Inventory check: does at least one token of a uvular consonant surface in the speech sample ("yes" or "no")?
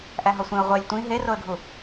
yes